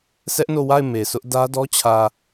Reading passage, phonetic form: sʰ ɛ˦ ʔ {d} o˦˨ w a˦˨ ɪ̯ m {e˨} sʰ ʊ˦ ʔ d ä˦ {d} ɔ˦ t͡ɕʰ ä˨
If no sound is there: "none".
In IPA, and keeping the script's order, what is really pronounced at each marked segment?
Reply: n, e˨, d

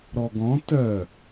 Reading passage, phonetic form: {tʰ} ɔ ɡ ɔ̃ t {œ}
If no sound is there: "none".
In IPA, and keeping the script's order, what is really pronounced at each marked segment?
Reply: ɾ, œ

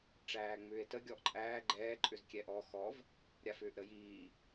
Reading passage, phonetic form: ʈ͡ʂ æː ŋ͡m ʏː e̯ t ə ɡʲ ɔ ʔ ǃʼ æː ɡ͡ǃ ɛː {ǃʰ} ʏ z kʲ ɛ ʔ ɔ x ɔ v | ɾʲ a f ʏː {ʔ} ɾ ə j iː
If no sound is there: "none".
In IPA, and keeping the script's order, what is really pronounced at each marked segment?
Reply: ǃʼ, ʔ

